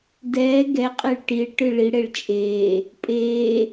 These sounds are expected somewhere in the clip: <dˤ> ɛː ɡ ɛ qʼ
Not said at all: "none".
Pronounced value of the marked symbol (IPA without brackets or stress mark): d